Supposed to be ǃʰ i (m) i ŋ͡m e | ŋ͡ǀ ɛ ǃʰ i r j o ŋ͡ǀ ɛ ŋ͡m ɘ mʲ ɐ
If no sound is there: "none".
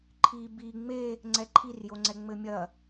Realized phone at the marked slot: b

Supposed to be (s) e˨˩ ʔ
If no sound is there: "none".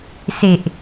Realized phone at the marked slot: s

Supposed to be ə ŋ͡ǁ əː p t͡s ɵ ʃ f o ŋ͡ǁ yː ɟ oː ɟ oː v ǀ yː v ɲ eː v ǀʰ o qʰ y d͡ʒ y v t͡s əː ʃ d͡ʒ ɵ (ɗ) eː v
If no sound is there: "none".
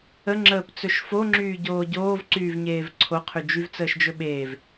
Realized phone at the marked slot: ɓ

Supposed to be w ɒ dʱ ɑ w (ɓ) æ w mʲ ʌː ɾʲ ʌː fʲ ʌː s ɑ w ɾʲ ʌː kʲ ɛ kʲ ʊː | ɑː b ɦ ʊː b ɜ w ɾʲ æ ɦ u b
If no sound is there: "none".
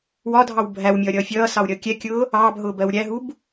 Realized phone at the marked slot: bʱ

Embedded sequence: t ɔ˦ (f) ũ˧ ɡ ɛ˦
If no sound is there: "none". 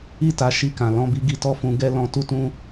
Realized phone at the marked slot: f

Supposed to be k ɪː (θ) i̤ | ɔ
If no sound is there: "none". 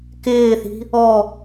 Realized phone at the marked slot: θ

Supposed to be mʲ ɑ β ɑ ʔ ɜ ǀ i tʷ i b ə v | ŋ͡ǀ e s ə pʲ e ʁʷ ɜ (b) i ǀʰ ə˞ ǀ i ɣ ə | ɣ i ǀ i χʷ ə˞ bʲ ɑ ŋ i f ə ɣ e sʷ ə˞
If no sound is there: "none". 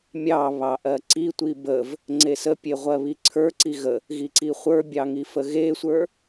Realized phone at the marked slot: β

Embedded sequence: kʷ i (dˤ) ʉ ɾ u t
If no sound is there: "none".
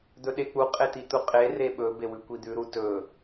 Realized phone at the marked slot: d̪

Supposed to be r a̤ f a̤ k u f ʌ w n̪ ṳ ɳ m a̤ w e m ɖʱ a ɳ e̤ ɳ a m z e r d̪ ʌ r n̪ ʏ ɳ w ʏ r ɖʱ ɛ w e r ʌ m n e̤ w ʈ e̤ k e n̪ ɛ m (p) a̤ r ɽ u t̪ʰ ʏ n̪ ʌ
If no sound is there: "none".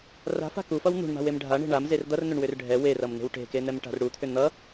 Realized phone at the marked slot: ʈ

